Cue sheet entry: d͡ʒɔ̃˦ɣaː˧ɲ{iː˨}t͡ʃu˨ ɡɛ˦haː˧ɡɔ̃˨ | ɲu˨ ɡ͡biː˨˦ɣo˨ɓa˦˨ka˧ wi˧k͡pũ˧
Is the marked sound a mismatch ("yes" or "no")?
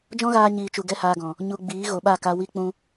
no